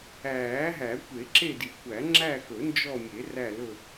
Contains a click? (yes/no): yes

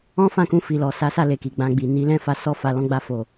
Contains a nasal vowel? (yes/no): yes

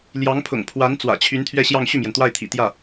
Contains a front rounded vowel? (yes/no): yes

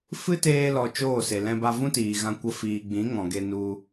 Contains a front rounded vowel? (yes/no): no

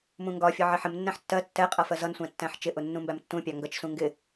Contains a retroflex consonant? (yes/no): no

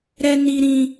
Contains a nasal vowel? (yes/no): yes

